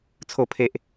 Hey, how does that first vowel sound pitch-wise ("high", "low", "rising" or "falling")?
falling